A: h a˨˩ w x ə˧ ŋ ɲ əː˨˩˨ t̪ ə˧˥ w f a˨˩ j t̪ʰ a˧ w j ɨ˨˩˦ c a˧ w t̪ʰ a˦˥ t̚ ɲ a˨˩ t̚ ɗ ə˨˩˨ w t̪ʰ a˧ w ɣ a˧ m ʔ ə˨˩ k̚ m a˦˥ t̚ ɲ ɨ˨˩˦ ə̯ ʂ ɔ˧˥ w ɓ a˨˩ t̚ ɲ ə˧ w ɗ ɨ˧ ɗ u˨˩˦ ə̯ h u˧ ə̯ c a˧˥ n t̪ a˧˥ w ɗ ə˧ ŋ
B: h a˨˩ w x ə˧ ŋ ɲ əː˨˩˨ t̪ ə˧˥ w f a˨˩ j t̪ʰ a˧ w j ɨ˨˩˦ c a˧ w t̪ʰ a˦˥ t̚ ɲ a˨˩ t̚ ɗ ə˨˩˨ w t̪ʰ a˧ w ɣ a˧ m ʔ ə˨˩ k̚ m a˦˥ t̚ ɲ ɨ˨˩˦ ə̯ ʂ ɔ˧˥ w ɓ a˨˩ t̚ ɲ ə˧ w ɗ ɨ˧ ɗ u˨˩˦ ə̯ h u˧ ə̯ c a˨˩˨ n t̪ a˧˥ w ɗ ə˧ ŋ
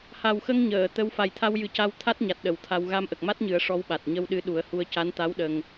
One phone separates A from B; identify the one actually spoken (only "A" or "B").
A